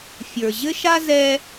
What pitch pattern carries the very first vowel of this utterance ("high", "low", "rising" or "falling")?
low